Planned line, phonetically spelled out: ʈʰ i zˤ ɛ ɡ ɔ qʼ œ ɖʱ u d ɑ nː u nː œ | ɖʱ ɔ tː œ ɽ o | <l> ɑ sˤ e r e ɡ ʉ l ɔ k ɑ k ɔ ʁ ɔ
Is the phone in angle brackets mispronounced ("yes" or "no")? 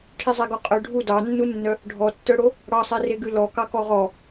yes